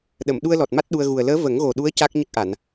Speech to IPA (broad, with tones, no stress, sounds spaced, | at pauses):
ɗ ə˨˩˨ m ɗ u˧ ə̯ l ɔ˨˩ t̚ m a˦˥ t̚ ɗ u˧ ə̯ ɣ u˨˩ ə̯ l əː˧˥ v ə˨˩˦ ŋ ɣ o˨˩ ɗ u˧˥ ə̯ c a˦˥ k̚ ɲ ə˦˥ k̚ ʔ a˨˩˨ n